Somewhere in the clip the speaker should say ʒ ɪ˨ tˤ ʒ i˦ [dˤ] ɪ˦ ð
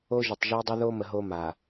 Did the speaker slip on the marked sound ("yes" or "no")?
no